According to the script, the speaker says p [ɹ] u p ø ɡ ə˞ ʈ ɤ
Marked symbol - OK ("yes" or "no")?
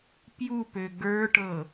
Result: no